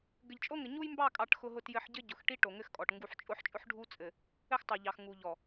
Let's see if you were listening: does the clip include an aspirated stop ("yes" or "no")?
no